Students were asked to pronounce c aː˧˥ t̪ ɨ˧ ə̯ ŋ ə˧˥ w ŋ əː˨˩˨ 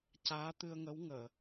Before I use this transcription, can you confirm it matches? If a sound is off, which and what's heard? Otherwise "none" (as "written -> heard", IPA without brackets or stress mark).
none